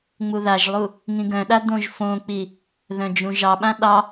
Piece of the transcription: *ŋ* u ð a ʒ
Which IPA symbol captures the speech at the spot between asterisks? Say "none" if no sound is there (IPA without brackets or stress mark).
ŋ͡m